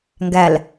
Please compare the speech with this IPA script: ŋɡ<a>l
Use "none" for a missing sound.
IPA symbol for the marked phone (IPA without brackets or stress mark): æ